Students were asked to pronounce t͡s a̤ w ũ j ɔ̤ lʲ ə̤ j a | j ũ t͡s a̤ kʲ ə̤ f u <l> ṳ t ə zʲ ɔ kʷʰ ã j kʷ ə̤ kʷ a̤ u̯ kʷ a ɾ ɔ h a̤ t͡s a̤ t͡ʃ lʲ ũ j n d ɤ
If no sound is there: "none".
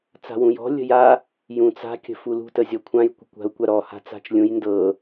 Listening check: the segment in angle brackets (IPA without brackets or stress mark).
l